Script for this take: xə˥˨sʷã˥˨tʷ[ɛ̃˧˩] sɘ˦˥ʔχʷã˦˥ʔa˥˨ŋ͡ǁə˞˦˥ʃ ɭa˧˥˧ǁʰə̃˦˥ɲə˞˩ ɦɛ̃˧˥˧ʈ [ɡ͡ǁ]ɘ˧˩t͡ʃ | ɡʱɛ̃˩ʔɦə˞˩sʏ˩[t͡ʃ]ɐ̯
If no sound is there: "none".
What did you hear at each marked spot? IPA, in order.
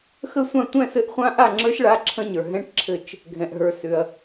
ɛ̃˥˨, ǁʰ, none

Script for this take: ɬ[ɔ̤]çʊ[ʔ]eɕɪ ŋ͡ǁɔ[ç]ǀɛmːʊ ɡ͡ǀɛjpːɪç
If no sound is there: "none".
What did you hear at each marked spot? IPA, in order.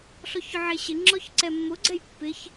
ɔ, ʕ, ç

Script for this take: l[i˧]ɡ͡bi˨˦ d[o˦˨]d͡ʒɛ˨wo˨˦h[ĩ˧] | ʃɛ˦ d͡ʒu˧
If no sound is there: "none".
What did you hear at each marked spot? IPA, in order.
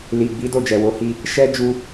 i˨, o˦˨, i˧

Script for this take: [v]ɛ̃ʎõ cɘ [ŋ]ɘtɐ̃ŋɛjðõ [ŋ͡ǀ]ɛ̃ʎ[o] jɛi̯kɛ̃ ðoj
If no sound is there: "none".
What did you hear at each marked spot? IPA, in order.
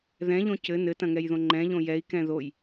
ð, n, ŋ͡ǃ, õ

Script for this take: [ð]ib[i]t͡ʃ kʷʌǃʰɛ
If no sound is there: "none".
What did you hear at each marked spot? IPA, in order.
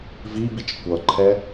v, i

